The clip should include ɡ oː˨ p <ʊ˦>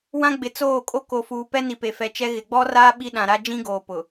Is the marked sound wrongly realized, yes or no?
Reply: yes